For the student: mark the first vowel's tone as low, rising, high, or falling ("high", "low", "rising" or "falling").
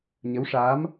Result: rising